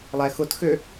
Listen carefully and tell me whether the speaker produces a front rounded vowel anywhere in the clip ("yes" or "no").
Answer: yes